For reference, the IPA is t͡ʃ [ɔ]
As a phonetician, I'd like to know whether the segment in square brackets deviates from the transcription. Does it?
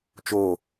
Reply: yes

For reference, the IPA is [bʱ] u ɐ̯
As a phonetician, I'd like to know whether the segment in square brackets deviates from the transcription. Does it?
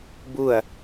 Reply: yes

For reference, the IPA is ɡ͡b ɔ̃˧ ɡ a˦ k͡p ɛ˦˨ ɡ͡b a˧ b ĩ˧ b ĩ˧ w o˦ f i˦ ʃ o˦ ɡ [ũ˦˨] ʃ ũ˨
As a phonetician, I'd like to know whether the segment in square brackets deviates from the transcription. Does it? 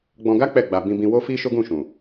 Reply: no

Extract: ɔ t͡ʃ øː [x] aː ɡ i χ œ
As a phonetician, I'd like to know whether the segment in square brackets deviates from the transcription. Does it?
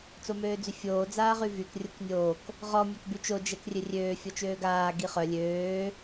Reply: yes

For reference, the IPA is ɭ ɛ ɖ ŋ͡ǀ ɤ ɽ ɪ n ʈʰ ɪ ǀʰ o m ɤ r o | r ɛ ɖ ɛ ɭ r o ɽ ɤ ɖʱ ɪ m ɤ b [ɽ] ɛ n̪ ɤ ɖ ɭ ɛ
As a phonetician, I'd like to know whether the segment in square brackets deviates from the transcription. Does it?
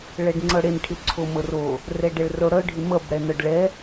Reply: no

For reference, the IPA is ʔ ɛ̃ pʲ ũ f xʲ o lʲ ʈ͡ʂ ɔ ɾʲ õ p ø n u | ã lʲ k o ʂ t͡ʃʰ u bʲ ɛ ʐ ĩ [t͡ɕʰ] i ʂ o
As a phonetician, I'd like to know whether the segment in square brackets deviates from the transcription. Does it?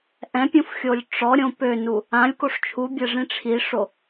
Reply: yes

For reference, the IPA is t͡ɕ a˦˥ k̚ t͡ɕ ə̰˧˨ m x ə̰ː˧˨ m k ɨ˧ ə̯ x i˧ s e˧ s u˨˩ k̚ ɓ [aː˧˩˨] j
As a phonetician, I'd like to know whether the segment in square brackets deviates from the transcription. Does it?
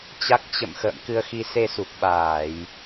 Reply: no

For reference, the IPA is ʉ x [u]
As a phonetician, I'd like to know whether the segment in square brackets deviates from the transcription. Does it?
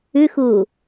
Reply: yes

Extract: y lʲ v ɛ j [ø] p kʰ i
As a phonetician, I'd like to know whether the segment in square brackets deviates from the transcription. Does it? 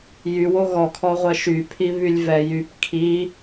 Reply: yes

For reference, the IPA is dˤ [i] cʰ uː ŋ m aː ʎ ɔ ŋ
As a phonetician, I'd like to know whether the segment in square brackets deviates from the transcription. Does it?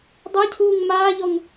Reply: yes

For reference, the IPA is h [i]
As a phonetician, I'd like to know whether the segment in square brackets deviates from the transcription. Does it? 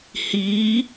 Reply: yes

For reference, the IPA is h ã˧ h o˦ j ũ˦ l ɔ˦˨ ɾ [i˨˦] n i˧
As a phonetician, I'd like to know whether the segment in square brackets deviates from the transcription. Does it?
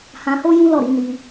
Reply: no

